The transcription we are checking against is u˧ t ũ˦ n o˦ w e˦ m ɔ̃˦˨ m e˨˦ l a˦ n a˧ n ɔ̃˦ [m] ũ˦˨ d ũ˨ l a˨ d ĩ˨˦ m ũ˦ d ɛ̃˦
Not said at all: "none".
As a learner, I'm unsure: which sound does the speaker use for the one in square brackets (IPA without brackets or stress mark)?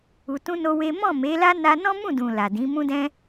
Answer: m